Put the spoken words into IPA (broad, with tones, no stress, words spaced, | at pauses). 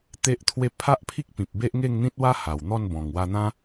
t̪e˦ʔt̪ʰwe˥˧ pʰa˦ʔpʰi˦k̚pĩ˨p̚ be˦ʔŋe˥˧ŋn̪ĩ˦t̚wa˦ ha˨˩wn̪ɔ˥˧n bɔ̃˨˩ŋwa˧n̪ã˦